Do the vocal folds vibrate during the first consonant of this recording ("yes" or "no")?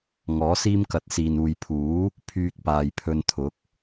yes